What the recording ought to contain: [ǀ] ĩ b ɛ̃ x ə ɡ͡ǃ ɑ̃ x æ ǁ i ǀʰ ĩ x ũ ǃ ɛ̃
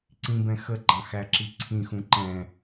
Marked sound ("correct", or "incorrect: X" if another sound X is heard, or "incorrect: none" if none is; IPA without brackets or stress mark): correct